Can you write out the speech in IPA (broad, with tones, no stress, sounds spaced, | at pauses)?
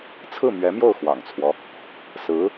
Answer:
t͡sʰ ɹ̩˥˩ m ɥ ɛ˧˥ m j o˥˩ ʊ̯ x w ɑ̰˨˩ ŋ t͡sʰ w ɔ˦ | s ɹ̩˧˥